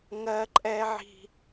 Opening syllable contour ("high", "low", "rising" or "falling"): high